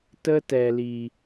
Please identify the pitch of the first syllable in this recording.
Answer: high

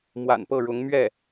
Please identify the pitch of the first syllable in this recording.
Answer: low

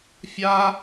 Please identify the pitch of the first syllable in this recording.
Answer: high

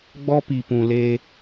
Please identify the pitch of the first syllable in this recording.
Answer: high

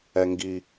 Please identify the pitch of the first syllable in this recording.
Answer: high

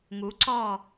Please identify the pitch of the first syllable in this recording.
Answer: rising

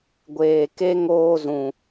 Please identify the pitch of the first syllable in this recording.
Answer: low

